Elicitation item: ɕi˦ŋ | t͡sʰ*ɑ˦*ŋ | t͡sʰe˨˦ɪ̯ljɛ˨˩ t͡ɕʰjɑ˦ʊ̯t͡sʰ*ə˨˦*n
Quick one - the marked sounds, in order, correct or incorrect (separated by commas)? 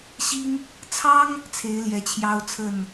correct, incorrect